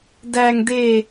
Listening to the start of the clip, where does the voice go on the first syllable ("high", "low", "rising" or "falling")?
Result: low